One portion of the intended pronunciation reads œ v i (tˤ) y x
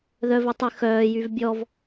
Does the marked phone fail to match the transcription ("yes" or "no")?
no